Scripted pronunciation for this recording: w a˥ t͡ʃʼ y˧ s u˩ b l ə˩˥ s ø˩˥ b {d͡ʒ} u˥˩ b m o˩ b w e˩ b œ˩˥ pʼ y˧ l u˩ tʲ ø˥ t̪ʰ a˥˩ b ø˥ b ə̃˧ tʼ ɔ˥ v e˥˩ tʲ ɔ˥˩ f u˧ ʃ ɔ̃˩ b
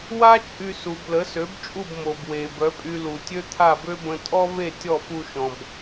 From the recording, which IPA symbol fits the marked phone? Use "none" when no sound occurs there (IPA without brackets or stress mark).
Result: t͡ʃʼ